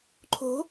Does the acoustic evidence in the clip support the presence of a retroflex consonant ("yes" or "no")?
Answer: no